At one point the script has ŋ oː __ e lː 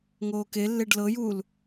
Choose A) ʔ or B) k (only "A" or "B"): B